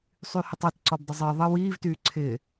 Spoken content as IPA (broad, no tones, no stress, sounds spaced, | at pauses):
sˤ y h ɪ tˤ ʌ t ǀ ɔ b dˤ ə zˤ ɪː ðˤ ə w iː v t yː ǀʰ ɪː